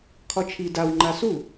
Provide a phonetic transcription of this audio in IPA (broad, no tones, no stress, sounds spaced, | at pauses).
kʰ ɒ t͡ʃʰ i d a w ŋ͡ǃ a s u